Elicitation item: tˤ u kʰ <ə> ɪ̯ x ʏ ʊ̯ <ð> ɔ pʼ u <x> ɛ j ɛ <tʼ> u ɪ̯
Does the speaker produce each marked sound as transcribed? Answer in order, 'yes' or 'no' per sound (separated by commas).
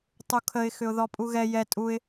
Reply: yes, yes, no, yes